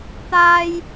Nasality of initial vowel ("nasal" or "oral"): oral